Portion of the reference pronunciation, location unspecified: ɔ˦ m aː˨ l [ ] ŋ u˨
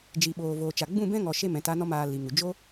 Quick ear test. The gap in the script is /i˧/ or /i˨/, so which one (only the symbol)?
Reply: i˨